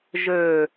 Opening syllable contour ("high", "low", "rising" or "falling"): low